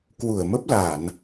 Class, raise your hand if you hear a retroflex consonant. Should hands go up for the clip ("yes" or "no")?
no